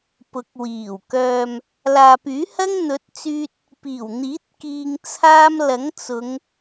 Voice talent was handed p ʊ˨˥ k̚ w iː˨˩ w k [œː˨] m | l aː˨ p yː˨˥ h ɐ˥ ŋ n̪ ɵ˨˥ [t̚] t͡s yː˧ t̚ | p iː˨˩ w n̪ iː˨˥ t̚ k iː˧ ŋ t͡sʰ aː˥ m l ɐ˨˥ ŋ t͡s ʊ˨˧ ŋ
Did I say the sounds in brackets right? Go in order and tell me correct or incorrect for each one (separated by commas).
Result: correct, correct